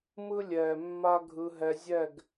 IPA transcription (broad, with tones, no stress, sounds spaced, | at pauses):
m ɯ˦ lʲ ɛː˨ mː a˦ ɡʱ ɯ˧ ɦ ɛ˧ zʲ ɛ˦˨ ɡ